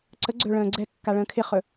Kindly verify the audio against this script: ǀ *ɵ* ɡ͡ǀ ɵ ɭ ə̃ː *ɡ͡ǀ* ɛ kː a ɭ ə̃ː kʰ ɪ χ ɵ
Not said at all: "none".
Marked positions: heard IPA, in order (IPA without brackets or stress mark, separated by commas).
ə, ɡ͡ǀ